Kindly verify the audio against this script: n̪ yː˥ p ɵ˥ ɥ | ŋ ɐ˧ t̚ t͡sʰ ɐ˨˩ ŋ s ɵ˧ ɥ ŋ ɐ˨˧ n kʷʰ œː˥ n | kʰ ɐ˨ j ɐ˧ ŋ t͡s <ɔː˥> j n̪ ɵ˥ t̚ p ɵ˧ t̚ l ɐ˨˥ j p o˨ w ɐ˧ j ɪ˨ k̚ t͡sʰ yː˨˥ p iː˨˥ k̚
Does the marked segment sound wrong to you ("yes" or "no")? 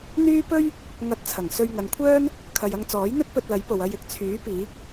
yes